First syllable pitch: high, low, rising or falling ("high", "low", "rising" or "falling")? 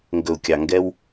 low